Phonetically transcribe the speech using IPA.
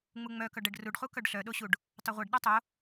ŋ͡muŋ͡mœkœɖ ɛɖruɖχu kœɖɬœɗoɕuɖ | tˤœʁʷeɖ ɗœtˤo

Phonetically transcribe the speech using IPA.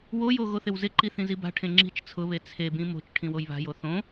wojo ɣoθɪwzɪǃi θĩziba̤ʈʰẽ ŋ͡ǁi̤t͡ʃ t͡sʰʊβe t͡sʰebĩ mo̤t͡ʃ ʈʰĩwojβa̤jo θõ

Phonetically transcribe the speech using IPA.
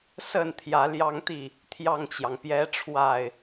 sə˥˨nt̪ʰjä˨˦ljɑ˦ŋt̪i˥˨ | t̪ʰjɑ˥˨ŋt͡ɕjɑ˩ŋpjɛ˦ ʈ͡ʂʰwa˥˨ɪ̯

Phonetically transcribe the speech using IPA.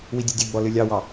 widʲɨdʲɘɡ͡bɔ lɨlʲɑwɑ

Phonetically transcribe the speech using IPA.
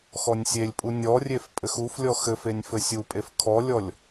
xɔnʲsʲelʲpʼu nʲɔrʲef pʼɘxuflʲɔ xɘfenʲ fɘsʲupʼef kʰɔlʲɔlʲ

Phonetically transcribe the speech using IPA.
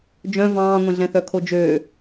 d͡ʒœ̃ vɑ̃ːŋʷɛ̃ɮɛ̃ θœkʰod͡ʒøː

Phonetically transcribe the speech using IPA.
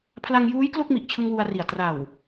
pʰla˧ŋjuː˦˥j klo˥˩k̚mi˨˩ʔt͡ɕʰɯ˧ŋ wu˧a̯ri˨˩a̯ tra˨˩w

